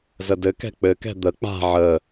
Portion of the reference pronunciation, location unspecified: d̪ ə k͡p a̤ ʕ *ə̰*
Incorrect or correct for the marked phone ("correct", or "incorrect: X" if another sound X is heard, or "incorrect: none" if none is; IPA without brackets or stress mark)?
incorrect: ə